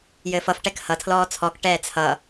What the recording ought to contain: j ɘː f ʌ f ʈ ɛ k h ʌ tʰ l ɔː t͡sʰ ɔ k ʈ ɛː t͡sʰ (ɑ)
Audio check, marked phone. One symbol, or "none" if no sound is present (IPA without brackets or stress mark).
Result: ʌ